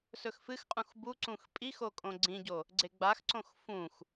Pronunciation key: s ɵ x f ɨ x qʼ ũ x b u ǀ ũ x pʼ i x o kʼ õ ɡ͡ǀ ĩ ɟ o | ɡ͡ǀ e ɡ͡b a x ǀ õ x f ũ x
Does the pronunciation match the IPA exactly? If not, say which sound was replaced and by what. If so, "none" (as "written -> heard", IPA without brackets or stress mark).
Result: none